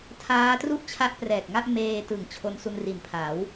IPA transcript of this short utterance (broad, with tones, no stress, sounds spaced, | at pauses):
tʰ aː˦˥ t r u˥˩ ʔ t͡ɕʰ a˦˥ ʔ p r ɛː˨˩ k̚ ŋ a˥˩ ʔ m eː˧ t ɯ˨˩ ŋ t͡ɕʰ o˧ n s u˧ n r i˨˩ n pʰ a˩˦ w